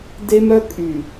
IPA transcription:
de˦mœ˦ kʼy˨

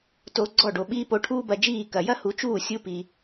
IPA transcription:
to˧ɡ͡ǀɔ˥˩ ɖo˩ɓiː˥ po˧ʈʰuː˥bɐ˧d͡ʒiː˥˩ kɐ˩jɐ˥hu˩˥ t͡ʃuː˥˩sʲu˧pi˩

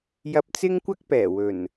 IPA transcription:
jɐ˧p̚t͡sɪ˥ŋkʷɐ˥k̚pɛː˨˩ wɵ˨˩n

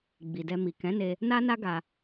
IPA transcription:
ɡ͡bi˨dɛ˧mi˨ kɛ̃˨˦ne˧ | na˦na˦ ɡa˧

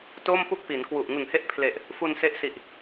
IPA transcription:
to˥˩mpu˥˩k̚pi˩˦n kwu˨˩ʔ ŋɯ˨˩ŋhe˦˥ʔpʰle˨˩ʔ | fu˧nse˦˥ʔ si˨˩ʔ

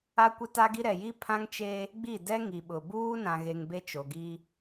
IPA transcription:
a˦kʷɪ˦ta˦ɡi˦ ɾɛ˨ji˦ pʰã˦ŋt͡ʃe˦ | ɡ͡bi˦˨dɛ˦ ŋi˨ɓʊ˨ buː˦nã˨ɣe˨ŋ be˦t͡ʃo˨ɡi˦

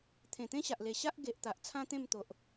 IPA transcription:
t̪ʰẽ˨˩t̪ẽ˦ɕa˨ʔle˨˩ ɕa˦ʔɡe˨ʔ t̪a˨ʔt͡sʰã˦t̪ẽ˥˧mt̪o˨ʔ

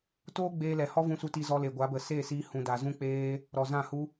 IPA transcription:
toː˦ɡ͡beː˧lɛ˨ hɔ˦vũ˧su˧ti˧ zɔ˧le˨ɡʷa˨˦bə˨ seː˦˨siː˧hũ˨da˨ zũ˦k͡peː˦ | ɾɔ˨zã˦˨hu˦

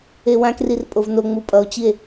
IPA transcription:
ewãkrir pʼovno ŋ͡mupʼʌo̯t͡ɕie̯

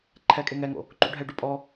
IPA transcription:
ǃʰɛkʼe ŋɛŋo̰ | ǃṵɖʱɛɖu pʼɔ

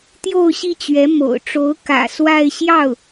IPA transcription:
t̪jo˥˧ʊ̯ɕi˥˩t͡ɕɥɛ˧˥ mo̰˨˩ʊ̯ʈ͡ʂo˧˥ʊ̯ kä̰˨˩ swa˥˧ɪ̯ ɕjɑ˥˩ʊ̯

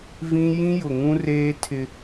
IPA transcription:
vĩ˦ jĩ˦jʊ˨ŋũ˦reː˦ tʰɪ˦

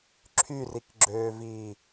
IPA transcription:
ǁʰyrikɡ͡ǁøːviː

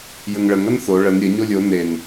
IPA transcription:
jəŋɭəŋ ɐnθo ɭən ɾʲə ɲolʲo nen

